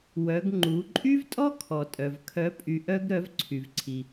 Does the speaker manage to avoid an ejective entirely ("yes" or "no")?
no